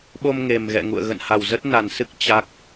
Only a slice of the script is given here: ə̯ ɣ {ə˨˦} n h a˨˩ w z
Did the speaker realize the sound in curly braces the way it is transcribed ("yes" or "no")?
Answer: no